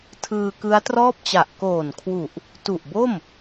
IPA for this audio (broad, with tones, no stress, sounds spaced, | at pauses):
tʰ ɯː˧ k ɯ˦˥ a̯ t r ɔː˥˩ p̚ t͡ɕ a˨˩ ʔ k oː˨˩ n kʰ w u˨˩ ʔ | t u˨˩ ʔ b o˥˩ m